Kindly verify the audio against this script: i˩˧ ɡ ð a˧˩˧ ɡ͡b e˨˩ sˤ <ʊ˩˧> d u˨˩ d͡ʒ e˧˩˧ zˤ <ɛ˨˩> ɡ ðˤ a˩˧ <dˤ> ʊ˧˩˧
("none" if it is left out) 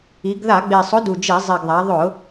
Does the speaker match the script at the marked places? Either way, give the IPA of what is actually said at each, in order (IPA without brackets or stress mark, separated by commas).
ʊ˨˥, e˨˩, ðˤ